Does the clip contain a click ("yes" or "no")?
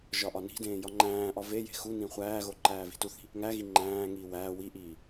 yes